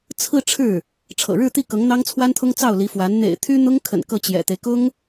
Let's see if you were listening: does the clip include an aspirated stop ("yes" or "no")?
yes